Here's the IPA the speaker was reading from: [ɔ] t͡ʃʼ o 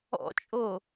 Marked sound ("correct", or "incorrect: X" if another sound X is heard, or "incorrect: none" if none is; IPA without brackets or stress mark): incorrect: ɔ̰